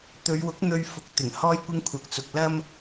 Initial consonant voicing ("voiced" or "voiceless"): voiceless